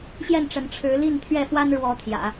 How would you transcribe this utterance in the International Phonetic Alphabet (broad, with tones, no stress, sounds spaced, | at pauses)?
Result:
ɕ j ɛ˥˩ n ʈ͡ʂ ə˧˥ n ʈ͡ʂʰ ɻ̩˧˥ l i˥˧ n t̪ʰ ɥ ɛ˥˩ f w a˥ n ɻ w ɔ˧˥ t̪ʰ j ä̰˨˩˦